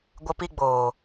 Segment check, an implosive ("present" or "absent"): absent